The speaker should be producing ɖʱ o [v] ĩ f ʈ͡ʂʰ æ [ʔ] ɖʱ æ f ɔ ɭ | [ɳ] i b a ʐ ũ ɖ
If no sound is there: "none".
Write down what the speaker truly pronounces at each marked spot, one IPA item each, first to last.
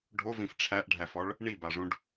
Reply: v, ʔ, ɳ

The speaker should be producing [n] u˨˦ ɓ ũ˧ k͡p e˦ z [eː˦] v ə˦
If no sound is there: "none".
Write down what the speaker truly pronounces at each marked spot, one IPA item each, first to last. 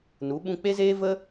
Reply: n, eː˦

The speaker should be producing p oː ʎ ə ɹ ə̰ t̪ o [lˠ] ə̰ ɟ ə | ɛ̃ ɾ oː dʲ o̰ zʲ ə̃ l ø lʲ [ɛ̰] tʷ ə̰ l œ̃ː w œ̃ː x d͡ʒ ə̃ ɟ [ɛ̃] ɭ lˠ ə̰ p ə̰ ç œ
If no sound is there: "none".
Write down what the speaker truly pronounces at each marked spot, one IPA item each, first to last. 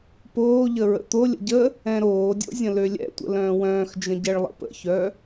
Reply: lʲ, ɛ̰, ɛ

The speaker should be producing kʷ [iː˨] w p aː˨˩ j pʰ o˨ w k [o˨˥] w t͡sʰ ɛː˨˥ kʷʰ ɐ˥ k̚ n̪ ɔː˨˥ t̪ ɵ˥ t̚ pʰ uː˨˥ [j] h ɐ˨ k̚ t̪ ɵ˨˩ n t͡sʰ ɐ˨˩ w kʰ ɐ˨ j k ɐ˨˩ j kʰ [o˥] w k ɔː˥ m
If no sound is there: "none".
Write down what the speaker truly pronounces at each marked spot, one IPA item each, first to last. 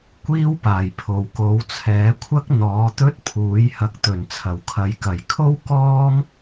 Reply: iː˥, o˨˥, j, o˥

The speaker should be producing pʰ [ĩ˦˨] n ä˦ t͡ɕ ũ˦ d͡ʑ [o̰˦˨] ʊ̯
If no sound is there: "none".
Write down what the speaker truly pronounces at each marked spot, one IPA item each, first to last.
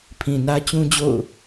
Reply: ĩ˨, o̰˦˨

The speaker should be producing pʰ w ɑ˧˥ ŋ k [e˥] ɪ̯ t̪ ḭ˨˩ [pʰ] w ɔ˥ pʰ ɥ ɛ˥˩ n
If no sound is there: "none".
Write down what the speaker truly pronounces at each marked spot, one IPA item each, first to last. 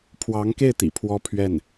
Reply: e˥˩, pʰ

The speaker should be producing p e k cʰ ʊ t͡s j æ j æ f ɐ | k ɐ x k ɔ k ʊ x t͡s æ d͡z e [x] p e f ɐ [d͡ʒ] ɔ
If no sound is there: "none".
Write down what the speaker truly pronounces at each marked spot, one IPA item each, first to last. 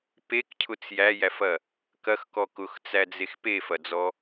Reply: x, d͡z

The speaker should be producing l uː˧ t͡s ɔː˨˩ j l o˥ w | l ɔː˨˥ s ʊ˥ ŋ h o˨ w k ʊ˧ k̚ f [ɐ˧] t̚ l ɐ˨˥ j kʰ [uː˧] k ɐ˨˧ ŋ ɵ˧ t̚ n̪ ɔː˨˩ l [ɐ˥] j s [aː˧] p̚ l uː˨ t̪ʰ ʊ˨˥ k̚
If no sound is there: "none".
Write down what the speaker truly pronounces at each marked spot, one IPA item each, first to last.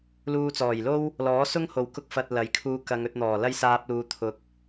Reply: ɐ˨, uː˧, ɐ˥, aː˧

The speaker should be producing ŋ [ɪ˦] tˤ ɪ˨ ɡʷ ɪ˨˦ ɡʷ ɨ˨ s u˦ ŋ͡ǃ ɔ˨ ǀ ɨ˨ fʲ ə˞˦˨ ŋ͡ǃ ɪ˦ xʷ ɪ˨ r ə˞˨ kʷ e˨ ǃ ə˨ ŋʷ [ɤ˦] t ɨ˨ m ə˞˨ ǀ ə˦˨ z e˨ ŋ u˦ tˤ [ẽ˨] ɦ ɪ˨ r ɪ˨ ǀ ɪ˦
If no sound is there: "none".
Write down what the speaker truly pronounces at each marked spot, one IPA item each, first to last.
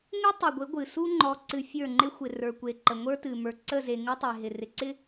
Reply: ɨ˦, ə˞˦, e˨

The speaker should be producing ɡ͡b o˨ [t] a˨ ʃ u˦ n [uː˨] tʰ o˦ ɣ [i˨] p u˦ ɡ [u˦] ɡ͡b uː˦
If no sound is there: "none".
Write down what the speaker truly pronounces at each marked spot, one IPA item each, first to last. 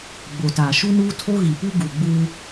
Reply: t, uː˦, i˨, u˨

